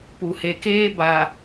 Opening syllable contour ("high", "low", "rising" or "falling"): low